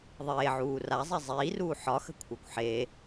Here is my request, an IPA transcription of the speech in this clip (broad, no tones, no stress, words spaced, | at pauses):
ðˤeːʕuː razˤi zˤiːruː ħɒxə̤kʷʰɑkʷ ħe